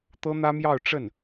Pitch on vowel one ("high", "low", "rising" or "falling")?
high